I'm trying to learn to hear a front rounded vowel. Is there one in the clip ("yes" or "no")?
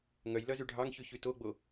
yes